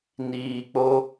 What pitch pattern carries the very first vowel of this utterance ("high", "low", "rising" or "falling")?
low